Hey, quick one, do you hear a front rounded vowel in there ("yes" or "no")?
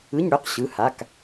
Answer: yes